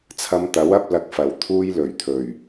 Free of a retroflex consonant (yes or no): yes